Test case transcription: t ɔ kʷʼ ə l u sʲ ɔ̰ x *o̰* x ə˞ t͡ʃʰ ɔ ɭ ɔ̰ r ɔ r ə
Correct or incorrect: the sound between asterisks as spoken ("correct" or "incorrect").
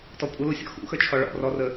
incorrect